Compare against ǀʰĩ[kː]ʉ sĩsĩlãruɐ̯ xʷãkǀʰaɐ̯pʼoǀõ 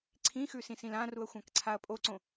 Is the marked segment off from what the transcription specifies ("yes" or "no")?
yes